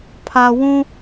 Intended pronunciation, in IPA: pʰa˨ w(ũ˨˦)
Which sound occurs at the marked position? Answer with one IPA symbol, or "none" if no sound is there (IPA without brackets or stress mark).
ũ˦